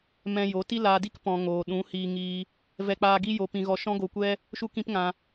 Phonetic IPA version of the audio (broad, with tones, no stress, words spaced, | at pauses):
mɛ̃˧jo˨˦ ti˦laː˧di˦k pɔ̃˨ ŋoː˨ɗũ˨˦hiː˧ŋiː˧ | vɛ˧k͡paː˧ɡi˦ jo˧pĩ˧ɣɔ˧ ʃɔ̃˦ɡo˧kʷɛ˦ | ʃu˦kĩ˦pŋã˧